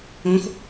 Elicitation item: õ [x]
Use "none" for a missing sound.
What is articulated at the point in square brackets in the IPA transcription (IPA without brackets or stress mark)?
x